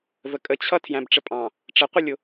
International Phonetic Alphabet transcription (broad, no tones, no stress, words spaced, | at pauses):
vəkʼət͡ɕʰʌ tʰjæ̃bʈ͡ʂəpʼɑ̃ | ʈ͡ʂəqʷʌlʲʊ